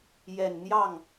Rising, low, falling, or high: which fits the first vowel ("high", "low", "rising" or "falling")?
low